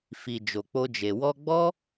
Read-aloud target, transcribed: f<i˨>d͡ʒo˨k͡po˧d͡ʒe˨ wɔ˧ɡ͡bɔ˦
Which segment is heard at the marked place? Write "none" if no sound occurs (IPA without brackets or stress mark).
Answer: i˨